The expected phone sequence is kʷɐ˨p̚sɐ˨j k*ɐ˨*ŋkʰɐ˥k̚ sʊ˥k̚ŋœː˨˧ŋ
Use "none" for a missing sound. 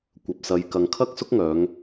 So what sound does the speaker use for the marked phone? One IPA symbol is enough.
ɐ˨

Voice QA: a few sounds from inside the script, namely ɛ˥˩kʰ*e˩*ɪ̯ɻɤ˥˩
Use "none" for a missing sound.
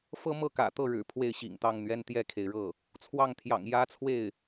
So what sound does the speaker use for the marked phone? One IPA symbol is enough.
e˩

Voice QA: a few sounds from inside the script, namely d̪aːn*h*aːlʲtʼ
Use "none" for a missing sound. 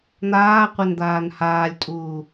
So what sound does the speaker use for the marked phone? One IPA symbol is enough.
h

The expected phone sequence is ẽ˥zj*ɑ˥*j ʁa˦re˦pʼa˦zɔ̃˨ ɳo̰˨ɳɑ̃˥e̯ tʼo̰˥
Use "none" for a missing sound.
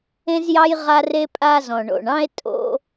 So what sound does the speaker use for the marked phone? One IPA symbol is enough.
ɑ˥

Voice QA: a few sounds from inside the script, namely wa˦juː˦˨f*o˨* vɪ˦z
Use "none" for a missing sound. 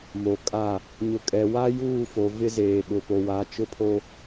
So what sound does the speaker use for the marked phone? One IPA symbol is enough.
o˨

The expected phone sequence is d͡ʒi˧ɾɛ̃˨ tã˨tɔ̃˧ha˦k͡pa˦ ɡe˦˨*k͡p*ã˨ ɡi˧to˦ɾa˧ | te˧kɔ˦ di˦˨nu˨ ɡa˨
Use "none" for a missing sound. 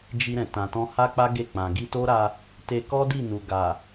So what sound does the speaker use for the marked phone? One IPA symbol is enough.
k͡p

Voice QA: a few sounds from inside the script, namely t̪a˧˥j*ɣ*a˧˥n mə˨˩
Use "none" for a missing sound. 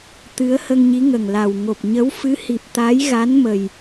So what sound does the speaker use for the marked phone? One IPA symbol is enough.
ɣ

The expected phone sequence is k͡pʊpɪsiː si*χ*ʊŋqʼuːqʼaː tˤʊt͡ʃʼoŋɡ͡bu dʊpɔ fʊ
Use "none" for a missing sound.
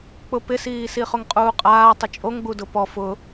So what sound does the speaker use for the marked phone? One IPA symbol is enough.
χ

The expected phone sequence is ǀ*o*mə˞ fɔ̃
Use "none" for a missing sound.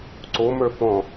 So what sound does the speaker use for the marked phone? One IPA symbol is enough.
o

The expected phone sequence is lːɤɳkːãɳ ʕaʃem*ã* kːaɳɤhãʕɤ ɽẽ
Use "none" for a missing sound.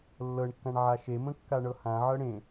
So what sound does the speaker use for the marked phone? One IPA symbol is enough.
ə̃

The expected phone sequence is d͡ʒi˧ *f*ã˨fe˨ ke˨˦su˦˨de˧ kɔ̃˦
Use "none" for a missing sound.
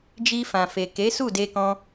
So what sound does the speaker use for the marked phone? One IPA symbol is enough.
f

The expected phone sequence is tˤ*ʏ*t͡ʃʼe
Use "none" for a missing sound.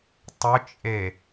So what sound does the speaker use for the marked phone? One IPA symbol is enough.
ʏ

